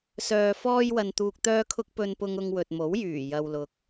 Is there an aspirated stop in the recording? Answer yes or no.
yes